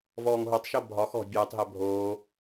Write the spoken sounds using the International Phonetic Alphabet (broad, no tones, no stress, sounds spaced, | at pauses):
v ɔː ŋ ɦ o tˤ ʃ o bʱ ɒ x ɔ̤ bʲ əː tˤ ɦ ɛ bʱ oː